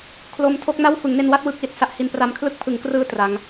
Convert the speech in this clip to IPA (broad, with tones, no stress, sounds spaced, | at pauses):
kʰ l o˧ m tʰ o˥˩ k̚ n a˥˩ w f ɯ˩˦ ŋ n e˧ n w a˥˩ t̚ w ɯ˦˥ k̚ l i˨˩ t̚ s a˥˩ ʔ h i˧ n p r a˦˥ m kʰ l ɯ˥˩ k̚ pʰ ɯ˩˦ ŋ k r ɯː˧ t r a˦˥ ŋ